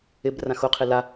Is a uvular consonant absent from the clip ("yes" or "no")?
no